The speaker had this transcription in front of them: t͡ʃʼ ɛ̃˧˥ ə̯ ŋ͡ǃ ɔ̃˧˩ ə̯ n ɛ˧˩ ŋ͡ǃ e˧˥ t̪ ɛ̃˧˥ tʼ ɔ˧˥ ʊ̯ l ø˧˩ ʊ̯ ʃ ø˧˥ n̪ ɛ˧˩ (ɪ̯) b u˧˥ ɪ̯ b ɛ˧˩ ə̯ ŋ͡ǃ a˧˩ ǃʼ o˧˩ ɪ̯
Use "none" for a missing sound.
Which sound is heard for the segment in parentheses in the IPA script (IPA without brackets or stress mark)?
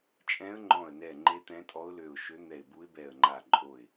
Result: ɪ̯